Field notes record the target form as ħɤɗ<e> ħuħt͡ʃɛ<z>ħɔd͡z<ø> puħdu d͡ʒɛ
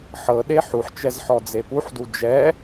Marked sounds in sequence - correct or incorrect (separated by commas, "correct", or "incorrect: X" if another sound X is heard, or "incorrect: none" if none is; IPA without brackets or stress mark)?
correct, correct, incorrect: e